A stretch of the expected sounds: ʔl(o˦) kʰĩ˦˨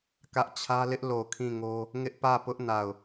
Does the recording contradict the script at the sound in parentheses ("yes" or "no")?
yes